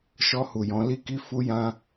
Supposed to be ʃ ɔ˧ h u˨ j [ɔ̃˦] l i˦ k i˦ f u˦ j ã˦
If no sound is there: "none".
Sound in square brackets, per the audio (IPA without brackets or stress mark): ɔ̃˧